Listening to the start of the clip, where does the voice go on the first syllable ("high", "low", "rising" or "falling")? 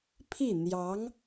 falling